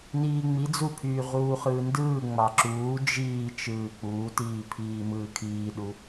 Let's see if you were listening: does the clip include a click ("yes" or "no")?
yes